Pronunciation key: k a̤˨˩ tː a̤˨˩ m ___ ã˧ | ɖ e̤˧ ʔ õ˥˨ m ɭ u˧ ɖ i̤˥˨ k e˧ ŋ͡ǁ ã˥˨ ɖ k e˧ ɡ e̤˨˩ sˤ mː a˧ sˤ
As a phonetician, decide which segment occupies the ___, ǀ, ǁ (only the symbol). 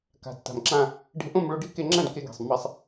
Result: ǁ